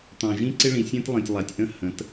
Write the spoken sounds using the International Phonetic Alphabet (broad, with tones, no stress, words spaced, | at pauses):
t̪ɑ̃˨ʒĩ˦ǀɪ˦ɭĩ˨ sʲæ̃˦tlˠĩ˨tʲlˠa˨tʲʔə̃˦ hə̃˨˦t